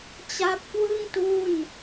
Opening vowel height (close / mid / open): open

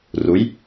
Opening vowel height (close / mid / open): close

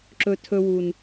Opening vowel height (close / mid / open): mid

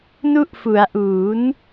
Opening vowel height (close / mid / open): close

